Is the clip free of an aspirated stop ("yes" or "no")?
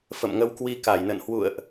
yes